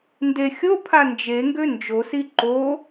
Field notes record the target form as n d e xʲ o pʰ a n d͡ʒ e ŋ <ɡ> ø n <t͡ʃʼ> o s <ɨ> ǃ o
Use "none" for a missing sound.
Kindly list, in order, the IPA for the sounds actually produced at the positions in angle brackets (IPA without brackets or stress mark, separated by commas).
ɡ, d͡ʒ, i